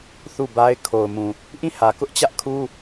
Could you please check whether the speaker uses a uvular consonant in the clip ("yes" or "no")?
no